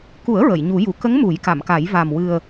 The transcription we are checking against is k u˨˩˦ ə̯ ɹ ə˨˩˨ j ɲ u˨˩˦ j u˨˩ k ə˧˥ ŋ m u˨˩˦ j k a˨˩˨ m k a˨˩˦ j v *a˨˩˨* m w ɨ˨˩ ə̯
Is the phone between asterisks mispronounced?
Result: yes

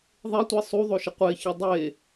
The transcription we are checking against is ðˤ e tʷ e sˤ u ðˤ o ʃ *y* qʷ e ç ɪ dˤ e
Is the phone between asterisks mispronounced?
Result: yes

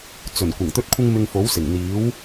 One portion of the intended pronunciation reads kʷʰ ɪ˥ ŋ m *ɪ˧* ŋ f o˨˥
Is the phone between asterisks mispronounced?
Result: no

